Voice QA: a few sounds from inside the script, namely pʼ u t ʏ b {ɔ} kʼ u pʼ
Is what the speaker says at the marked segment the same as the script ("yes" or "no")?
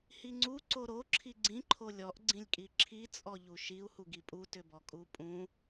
yes